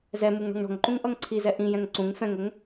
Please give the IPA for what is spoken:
z ɛ m u ŋ ɳ ɔ̤ ŋ ɳ ɔ̤ ŋ ǃ ũ ŋ ʔ ʌ ŋ ǀʰ i z ɛ ʔ ĩ j ɛ̃ ŋ ǀ ũ ŋ f ɛ̃ ŋ ʊ ŋ

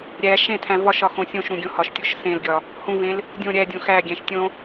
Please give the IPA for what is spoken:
ɾʲ æ ʃ ẽ tʰ æ̃ v ɒ ʃ ɒ x õ sʲ õ ʃ ɾ ũ ɡʲ õ h ɒ ʃ tʲ o ʃ s ẽ l ɡʲ ɒ | h ũ v ẽ l | dʲ õ ɾʲ æ dʲ õ x æ ɡʲ æ̃ ʃ tʲ õ

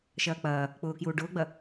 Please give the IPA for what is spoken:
ʃ ɐː k͡p ɐː | k͡p ʊː k j uː ɖ ʊː ɡ͡b ɐ

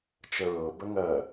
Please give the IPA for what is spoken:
t͡ʃ ə ɹ ɤ b ə ŋ ɜ

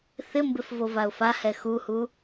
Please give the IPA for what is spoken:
θ ɪ m b ɪ f v o v a ʊ̯ f a h ɛ x u h u

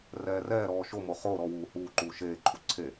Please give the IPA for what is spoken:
r ɛː r ɛː ɾ ɔː ʃ o m o χ o ɾ ɔ w uː h uː ǃ uː ʃ eː ǃʰ u ǀʰ e

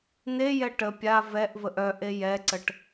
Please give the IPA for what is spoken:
n̪ e j ɛ ʈ ə pʲ a v ɛ ʔ v ə ʔ œ ʔ e j ɛ ǀ ə ʈ

